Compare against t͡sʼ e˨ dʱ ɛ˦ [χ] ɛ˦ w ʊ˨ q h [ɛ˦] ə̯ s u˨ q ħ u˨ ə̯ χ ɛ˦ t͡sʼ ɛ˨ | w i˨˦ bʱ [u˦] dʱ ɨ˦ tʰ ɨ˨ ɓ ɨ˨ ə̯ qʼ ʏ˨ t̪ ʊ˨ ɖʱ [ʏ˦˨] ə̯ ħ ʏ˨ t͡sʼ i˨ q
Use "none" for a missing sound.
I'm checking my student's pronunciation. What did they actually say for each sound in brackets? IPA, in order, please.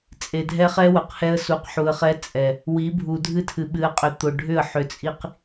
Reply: χ, ɛ˦, u˨, ʏ˦˨

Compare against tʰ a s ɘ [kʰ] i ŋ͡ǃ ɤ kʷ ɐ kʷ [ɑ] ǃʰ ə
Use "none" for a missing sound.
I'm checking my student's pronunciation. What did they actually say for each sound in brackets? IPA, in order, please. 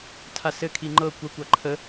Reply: kʰ, ɑ

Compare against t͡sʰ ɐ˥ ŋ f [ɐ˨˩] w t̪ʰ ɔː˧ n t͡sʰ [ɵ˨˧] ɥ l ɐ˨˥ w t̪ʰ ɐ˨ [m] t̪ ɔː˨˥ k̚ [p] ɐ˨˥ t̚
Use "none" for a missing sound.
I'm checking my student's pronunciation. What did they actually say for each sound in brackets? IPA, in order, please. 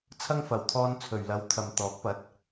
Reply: ɐ˨˩, ɵ˨˩, m, p

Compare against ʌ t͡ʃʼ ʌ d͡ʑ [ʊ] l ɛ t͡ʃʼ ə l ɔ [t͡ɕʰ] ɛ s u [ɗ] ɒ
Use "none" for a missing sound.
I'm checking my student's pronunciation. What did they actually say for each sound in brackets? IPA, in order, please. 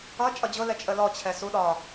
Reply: ʊ, t͡ɕʰ, ɗ

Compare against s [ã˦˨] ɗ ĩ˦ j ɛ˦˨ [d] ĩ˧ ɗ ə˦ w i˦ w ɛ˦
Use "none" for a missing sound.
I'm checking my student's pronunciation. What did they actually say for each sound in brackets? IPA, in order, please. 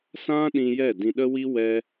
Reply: ã˦, d

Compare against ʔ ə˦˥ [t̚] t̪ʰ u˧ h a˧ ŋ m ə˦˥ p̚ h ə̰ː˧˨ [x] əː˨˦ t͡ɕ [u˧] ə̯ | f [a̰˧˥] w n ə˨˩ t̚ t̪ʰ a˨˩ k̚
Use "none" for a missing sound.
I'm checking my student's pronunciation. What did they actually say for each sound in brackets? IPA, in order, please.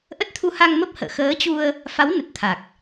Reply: t̚, x, u˧, a˨˦

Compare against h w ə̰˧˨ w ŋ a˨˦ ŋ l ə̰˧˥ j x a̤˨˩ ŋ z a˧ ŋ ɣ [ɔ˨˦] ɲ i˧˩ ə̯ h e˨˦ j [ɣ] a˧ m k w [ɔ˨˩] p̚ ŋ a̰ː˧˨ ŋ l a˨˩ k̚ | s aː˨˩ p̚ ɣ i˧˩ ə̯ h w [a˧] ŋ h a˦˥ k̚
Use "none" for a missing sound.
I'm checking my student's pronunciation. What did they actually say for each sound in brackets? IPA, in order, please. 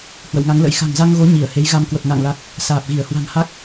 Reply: o˨˦, ɣ, ə˨˩, a̤˨˩

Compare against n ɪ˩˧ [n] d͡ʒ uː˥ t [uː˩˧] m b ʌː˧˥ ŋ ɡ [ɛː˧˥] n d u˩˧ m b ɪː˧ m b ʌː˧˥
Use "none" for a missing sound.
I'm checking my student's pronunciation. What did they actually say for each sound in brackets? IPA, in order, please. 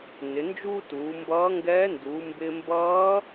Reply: n, uː˩˧, ɛː˧˥

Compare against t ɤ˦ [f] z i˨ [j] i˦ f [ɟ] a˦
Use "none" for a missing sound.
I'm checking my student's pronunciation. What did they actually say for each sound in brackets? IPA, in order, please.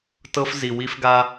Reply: f, w, ɡ

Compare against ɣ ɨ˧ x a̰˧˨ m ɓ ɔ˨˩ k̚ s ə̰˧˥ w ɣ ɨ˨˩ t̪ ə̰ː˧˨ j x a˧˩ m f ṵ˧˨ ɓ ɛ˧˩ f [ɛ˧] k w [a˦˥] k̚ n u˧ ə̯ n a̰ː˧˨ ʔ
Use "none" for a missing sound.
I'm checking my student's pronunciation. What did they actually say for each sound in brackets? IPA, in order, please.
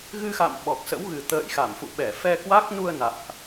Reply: ɛ˧, a˦˥

